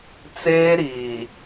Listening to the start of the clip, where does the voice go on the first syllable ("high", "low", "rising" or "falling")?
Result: high